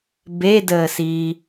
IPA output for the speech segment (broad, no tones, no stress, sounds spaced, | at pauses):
b e d əː s iː